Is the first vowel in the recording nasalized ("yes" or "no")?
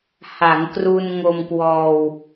no